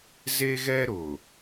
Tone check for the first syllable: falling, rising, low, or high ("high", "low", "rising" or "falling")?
high